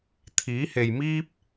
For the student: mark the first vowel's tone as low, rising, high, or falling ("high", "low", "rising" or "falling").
rising